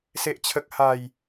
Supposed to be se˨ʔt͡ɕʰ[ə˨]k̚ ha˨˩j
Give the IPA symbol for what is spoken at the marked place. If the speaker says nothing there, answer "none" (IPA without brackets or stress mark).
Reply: ə˨